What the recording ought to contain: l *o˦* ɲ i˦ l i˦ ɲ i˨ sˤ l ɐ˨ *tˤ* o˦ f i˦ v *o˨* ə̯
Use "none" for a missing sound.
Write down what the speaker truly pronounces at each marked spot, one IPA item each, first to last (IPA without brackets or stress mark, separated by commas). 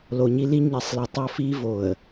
o˨, tˤ, o˨